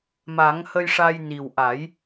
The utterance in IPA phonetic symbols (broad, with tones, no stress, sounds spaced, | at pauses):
m a˨˩˦ ŋ h ə˧ j ʂ a˧ j n i˨˩ w ʔ a˨˩˦ j